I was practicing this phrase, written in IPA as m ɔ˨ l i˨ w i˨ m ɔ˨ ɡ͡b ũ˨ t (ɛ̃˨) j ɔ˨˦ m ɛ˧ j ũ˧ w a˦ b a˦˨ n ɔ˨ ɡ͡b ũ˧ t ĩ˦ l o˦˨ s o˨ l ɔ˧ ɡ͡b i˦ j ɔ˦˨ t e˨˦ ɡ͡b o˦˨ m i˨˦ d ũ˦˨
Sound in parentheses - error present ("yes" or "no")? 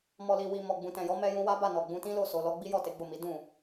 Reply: no